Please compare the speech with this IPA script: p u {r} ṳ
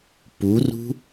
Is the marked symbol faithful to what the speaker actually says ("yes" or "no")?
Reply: yes